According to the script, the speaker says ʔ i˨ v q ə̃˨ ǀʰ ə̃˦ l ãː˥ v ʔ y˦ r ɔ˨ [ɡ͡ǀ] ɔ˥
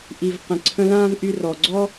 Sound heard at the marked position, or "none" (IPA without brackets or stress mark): ɡ͡ǀ